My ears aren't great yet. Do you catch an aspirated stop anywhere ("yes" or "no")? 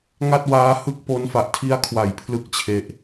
yes